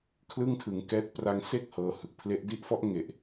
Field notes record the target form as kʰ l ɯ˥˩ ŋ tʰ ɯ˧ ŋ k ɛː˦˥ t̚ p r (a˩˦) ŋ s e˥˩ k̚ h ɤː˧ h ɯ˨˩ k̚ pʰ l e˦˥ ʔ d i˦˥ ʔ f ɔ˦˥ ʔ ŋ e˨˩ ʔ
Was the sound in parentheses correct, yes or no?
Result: no